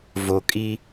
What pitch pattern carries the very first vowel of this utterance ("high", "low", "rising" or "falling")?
low